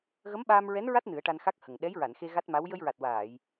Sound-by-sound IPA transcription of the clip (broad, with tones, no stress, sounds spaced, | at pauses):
ɣ ə˧˥ m ɓ aː˧ m ɹ ɛ˧˥ n ɹ a˦˥ t̚ n ɨ˨˩˦ ə̯ ʈ a˧ n x a˦˥ k̚ h ə˨˩ ŋ ɗ ɛ˧˥ j ɹ a˨˩˨ n x e˧ ɣ a˦˥ t̚ m a˧˥ w j ə˧ j ɹ a˨˩ t̚ w aː˨˩˨ j